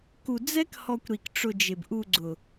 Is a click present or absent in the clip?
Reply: present